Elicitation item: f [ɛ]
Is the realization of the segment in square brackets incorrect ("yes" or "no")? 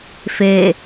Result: yes